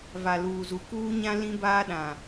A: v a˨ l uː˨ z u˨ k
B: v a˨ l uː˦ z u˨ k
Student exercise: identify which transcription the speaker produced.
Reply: A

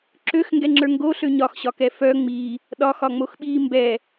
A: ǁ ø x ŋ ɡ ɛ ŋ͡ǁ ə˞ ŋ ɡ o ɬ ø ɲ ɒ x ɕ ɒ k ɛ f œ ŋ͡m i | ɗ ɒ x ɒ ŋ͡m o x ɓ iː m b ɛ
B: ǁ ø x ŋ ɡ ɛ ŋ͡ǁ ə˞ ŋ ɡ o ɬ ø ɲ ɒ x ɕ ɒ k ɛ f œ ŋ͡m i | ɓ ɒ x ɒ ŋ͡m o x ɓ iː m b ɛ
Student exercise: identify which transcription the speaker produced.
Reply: A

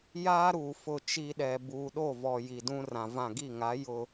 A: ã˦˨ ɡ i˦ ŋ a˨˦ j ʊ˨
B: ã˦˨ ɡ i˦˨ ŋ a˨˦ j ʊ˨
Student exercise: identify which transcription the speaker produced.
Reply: B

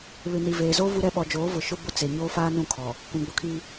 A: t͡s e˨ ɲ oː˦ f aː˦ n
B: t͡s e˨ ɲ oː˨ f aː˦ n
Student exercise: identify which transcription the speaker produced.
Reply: A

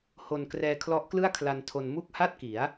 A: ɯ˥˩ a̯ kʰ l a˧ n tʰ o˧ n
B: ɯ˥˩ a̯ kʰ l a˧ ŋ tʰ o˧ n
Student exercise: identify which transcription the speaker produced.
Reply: A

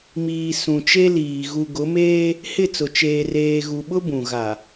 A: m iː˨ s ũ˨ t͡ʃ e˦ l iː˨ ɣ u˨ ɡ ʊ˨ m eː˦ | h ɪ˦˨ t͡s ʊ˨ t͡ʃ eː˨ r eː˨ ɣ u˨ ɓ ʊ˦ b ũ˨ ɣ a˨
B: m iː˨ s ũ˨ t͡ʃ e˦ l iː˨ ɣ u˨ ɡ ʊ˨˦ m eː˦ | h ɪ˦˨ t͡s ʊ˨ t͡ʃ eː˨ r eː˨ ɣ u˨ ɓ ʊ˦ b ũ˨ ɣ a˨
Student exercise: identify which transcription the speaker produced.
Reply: B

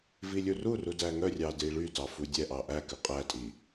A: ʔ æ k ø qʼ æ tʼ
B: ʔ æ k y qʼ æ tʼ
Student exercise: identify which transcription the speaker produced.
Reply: A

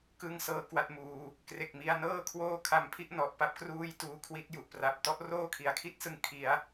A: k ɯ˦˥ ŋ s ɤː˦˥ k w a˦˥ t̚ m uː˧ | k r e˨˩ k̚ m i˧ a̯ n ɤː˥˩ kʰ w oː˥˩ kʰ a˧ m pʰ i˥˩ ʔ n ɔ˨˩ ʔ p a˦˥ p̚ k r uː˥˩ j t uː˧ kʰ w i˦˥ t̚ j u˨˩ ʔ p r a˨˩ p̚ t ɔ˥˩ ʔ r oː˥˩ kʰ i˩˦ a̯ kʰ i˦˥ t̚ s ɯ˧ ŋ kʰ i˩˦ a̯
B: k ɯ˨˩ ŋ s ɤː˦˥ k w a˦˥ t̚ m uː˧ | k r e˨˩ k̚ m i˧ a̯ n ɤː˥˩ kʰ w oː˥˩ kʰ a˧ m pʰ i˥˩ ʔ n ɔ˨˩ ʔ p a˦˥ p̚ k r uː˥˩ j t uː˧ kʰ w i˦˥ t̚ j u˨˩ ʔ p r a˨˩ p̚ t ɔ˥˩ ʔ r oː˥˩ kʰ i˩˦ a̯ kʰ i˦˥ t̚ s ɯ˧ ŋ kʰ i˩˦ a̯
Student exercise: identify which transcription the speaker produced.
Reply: A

